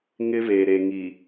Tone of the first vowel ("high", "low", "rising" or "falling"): high